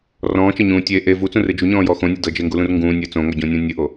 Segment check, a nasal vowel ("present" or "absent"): present